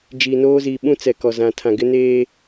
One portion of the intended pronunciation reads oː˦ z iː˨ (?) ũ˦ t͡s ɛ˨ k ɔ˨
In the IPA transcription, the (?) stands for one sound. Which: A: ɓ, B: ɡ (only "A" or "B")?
A